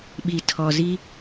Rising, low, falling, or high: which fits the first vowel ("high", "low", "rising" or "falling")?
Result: low